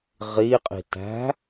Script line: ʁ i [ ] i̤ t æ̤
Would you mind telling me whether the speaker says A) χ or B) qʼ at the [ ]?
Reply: B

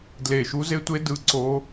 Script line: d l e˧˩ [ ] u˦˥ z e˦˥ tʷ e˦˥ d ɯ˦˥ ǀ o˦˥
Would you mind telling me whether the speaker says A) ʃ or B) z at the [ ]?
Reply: A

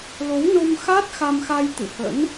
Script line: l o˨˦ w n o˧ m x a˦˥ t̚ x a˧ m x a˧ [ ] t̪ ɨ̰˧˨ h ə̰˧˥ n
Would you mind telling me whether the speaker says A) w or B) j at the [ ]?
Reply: B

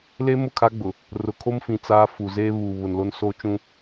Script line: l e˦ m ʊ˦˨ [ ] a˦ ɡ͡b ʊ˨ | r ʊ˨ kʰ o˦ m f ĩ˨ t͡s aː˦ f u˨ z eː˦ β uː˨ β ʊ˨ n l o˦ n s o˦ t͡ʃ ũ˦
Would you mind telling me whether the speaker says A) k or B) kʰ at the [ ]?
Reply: B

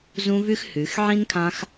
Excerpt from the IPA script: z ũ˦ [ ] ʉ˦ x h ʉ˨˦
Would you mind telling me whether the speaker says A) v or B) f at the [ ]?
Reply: A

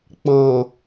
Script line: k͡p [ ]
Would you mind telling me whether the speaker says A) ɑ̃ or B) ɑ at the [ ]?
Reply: A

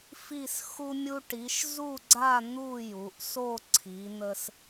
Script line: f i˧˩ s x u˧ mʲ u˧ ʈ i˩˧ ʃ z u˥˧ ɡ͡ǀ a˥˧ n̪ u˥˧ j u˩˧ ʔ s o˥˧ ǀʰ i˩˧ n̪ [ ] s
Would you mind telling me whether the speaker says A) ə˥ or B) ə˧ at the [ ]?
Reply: B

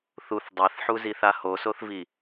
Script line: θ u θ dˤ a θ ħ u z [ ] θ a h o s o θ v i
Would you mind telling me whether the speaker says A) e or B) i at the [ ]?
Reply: B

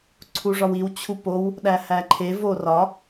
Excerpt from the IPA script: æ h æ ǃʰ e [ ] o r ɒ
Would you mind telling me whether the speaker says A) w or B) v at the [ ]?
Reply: B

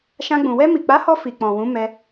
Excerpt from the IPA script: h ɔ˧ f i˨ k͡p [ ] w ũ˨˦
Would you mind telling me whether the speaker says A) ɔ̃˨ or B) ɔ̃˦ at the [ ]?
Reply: A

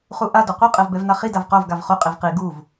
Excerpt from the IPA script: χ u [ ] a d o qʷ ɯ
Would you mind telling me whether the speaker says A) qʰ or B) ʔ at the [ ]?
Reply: B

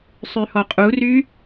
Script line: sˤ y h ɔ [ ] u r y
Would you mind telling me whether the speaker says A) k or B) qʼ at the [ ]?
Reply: B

